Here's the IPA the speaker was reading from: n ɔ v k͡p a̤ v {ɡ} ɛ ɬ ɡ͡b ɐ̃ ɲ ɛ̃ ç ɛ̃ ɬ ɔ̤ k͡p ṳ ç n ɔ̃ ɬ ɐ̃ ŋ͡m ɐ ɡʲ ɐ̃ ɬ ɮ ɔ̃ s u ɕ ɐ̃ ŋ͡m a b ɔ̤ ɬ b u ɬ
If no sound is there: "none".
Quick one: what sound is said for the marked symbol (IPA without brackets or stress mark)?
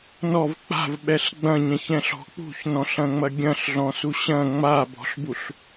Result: ɓ